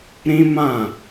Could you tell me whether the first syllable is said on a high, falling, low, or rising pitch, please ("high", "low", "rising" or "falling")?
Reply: high